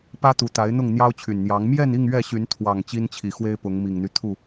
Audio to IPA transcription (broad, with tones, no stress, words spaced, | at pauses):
pä˦t̪u˨˦t̪a˨˦ɪ̯ n̪ʊ˥˨ŋn̪jɑ˦ʊ̯t͡ɕʰy˨˩nn̪jɑ˨˦ŋ mjɛ˥˨ni˥˨ŋ ɥɛ˥˨ɕy˨˦n t̪ʰwɑ˨˩ŋ t͡ɕi˦nt͡ɕʰi˨˩xwe˦ɪ̯pʊ˨˦ŋ mi˨˩ŋn̪y˦t̪ʰu˥˨